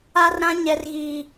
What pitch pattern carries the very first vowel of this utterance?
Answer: high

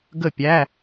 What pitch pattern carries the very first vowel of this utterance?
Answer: falling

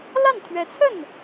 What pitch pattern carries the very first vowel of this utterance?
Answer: falling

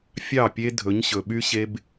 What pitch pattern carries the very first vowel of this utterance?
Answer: falling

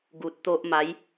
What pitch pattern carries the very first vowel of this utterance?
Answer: low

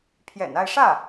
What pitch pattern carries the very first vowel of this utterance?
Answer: low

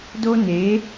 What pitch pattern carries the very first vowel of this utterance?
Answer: high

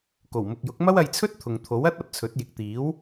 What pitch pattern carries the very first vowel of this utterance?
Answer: low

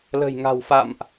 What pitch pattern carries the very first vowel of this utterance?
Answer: low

